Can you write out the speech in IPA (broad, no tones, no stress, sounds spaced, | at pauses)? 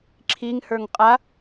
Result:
ǁʰ i ŋ h ə˞ ŋ qʼ a